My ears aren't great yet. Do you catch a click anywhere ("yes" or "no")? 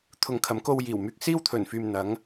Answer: no